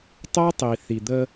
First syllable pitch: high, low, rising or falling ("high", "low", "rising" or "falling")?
high